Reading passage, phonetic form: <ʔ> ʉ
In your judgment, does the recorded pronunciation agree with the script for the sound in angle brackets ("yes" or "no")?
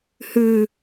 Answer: no